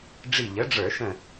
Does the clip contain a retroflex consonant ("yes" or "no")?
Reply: yes